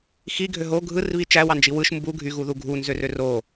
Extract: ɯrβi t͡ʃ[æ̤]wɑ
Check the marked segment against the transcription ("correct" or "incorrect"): incorrect